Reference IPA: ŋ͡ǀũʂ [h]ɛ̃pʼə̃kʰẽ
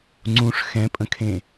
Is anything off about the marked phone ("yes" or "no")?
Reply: yes